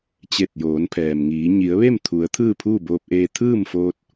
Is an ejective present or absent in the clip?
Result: absent